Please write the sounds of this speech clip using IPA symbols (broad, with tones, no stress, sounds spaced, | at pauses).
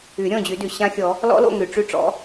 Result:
y˨˩˦ ɾʲ ɔ̃˥˨ d͡ʑ y˨˩˦ d y˩ ɕ ã˦˥ xʲ ɔ˨˩˦ | l ɔ̰˦˥ l o̰˥˨ ŋ y˩ ʈ͡ʂ y˥˨ ʈ͡ʂ ɔ̰˨˦